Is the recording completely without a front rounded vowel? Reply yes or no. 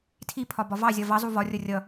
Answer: yes